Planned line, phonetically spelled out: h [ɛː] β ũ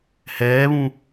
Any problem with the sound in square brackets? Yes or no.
no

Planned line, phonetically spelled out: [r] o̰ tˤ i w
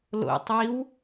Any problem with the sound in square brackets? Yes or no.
yes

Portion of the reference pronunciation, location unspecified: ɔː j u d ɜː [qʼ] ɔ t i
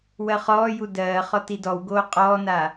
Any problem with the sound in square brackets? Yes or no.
yes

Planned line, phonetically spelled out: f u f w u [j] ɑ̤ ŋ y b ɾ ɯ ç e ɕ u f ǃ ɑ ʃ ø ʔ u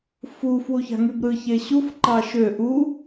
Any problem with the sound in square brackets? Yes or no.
yes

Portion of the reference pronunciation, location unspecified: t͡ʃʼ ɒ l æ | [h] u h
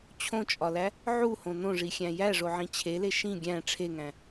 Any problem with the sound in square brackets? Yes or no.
yes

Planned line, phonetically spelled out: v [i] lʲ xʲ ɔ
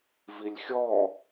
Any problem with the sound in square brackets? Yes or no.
no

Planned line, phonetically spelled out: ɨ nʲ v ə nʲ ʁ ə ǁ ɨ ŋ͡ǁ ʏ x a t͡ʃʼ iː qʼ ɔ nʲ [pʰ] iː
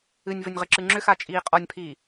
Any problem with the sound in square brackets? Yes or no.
no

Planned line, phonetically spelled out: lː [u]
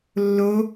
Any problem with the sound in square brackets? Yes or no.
yes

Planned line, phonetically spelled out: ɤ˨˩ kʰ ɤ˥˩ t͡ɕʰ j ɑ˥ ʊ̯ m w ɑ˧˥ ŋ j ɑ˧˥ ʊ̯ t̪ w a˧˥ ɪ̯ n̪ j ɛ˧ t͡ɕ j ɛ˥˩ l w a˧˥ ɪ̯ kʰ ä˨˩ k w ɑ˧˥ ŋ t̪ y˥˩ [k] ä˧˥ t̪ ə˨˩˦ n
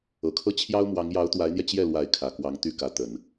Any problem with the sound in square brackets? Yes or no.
no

